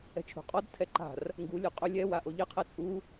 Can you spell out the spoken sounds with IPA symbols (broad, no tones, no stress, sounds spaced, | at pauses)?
ɛ̤ t͡ʃʰ ṳ qʼ ɔ d tʰ ɛ ǃ a̤ r | ŋ ɡ u lʲ o qʼ ʊ lʲ ɛ w a ʔ o ʎ ɪ qʰ ɛ t͡sʼ u